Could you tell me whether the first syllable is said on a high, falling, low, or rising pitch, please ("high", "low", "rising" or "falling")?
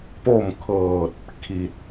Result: falling